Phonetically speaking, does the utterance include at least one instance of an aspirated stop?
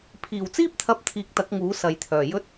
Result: yes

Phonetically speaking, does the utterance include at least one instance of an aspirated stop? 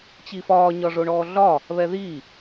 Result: no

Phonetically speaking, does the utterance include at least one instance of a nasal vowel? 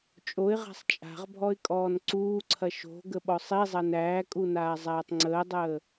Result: no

